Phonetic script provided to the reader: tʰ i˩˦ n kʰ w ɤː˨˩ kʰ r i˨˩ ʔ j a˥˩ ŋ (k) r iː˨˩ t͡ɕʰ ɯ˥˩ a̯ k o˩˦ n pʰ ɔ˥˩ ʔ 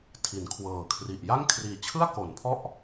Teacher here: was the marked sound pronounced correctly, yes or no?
no